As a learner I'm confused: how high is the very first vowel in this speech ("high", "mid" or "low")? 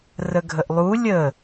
mid